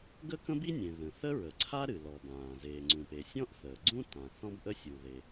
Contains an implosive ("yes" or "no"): no